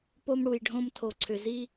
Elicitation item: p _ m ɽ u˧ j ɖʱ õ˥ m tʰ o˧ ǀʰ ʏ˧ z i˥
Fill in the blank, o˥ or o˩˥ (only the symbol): o˥